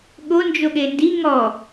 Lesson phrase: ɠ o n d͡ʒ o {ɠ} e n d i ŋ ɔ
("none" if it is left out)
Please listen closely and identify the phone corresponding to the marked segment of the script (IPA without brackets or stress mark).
ɠ